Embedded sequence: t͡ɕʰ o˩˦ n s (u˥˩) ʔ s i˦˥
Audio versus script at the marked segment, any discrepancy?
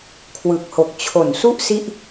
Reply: no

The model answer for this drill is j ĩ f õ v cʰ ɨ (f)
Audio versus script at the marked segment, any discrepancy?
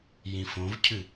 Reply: yes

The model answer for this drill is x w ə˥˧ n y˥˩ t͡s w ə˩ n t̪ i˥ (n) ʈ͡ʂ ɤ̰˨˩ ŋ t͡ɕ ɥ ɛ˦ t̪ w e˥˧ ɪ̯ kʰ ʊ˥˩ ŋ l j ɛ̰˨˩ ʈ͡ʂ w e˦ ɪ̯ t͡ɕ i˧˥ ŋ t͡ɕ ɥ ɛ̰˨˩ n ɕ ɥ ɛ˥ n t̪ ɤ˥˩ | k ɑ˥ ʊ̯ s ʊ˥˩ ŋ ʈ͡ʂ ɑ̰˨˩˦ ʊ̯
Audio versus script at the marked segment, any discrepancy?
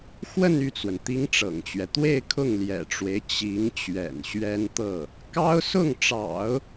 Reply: yes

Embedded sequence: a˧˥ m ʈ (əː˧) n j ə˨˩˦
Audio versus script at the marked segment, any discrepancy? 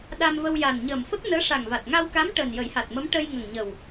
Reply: yes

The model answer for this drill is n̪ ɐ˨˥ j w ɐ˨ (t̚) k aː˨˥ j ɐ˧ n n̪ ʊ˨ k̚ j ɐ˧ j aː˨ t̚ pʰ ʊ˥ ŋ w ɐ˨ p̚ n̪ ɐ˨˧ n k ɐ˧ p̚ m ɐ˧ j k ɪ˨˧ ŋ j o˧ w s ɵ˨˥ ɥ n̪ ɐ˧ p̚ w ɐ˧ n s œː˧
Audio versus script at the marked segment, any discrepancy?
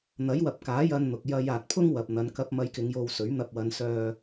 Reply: yes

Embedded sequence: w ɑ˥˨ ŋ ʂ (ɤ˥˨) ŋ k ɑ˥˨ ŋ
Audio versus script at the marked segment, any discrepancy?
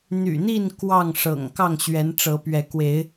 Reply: yes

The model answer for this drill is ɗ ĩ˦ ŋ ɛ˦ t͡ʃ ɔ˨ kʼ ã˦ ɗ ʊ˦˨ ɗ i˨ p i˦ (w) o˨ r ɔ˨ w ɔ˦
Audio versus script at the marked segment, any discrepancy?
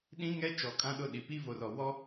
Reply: yes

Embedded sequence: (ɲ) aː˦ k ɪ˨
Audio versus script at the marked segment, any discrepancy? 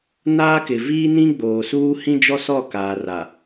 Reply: yes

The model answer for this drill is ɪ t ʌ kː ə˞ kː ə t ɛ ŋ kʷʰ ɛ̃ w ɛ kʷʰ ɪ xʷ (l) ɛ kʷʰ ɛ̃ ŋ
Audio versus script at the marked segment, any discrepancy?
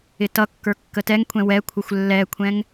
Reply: yes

